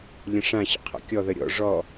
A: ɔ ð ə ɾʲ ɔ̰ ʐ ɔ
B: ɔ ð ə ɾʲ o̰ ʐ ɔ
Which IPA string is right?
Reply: A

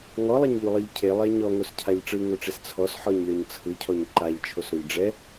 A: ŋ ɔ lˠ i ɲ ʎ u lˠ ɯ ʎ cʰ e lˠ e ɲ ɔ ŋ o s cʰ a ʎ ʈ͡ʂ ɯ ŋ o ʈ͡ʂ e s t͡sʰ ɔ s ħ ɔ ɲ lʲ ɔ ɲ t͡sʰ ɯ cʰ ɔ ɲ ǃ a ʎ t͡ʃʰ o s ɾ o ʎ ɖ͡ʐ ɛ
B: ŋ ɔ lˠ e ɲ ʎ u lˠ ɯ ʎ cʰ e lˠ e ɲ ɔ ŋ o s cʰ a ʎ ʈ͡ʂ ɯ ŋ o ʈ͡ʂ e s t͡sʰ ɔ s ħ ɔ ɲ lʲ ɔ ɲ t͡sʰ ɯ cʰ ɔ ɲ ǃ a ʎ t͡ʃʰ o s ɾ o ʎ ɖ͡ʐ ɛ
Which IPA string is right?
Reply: B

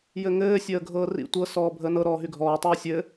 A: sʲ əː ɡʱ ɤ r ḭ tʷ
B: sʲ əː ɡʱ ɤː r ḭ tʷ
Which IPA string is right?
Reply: B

